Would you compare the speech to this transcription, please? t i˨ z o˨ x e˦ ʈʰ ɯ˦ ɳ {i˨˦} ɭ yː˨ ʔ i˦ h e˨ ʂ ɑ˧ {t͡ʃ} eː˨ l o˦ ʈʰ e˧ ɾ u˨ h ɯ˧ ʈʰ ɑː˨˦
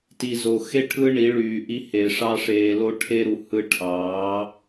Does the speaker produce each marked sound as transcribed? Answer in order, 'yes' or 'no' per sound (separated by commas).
yes, no